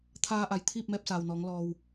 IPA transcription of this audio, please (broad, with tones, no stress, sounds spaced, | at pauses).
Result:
t̪ʰ aː˧ ʔ a˩ j t̪ʰ iː˥˨ p̚ m ɛː˧ p̚ s aː˩ w n ɔː˩˧ ŋ l ɔː˩ w